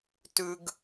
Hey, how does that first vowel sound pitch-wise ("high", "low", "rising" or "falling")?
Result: low